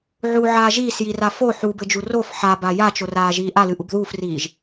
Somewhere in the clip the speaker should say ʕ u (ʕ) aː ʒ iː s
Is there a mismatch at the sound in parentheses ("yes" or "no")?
no